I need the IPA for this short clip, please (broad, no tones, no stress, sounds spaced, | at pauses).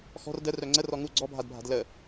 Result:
x ɔ̤ r d ə r œ ŋ͡ǀ ə r ɔ ŋ u ɡ͡ǀ ɔ bʱ a d bʱ a̤ d l ə